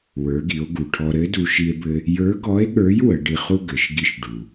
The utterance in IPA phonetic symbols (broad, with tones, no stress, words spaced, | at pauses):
wə˞˩˧ɡi˩˧o̯ ɡu˩ʈʰɔ˧ ɾɘ˧˥ du˧ ʃi˧e̯bɘ˧ | jə˞˧˥ɡɔ˧˥e̯ɠə˞˧˥j wə˩˧ɖi˧χu˥ ɡɘ˩˧ʃ ɡi˧˥ʃ ɖu˩